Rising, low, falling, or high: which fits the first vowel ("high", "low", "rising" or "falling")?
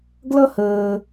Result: high